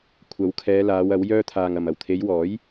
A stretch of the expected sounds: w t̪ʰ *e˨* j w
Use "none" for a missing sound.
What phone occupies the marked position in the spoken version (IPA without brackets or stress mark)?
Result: e˨˧